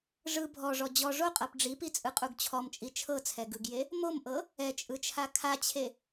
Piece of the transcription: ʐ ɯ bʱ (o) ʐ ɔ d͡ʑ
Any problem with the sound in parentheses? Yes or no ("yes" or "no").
yes